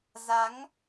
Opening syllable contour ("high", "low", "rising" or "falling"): rising